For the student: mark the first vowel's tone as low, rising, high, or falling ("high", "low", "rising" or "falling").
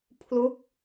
falling